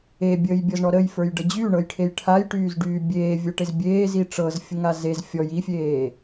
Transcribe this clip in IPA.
e bʲ əː j bʲ ɤ z ɳ ɔ ɾ ə j f ə˞ j ɖ ə d͡ʑ y ɳ ɤ j ʈʰ e j ʈʰ a j ʈ yː z ɖ yː bʲ eː vʲ ə˞ ʈ e z bʲ eː z i ʈ͡ʂ ɤ z fʲ ə ŋ a z e z fʲ ɔ j i fʲ eː

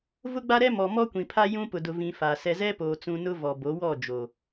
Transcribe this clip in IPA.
v ʊ˦ ɡ͡b a˦ ɾ ɛ˦ m ɔ˨ m ɔ˦ kʷ ĩ˨ pʰ a˦ j ũ˦ p ʊ˨ d ʊ˨ v ĩ˨ f a˨ s ɛ˨ z ɛ˦ p o˨ t͡s ũ˨ n ʊ˦ v ɔ˨ b o˨˦ w ɔ˦˨ d͡ʒ o˨

